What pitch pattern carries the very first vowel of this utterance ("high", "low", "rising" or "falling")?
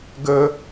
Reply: high